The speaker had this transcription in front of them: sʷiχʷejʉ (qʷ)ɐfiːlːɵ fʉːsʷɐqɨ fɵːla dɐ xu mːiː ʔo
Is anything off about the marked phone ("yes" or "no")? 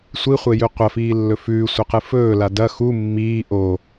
no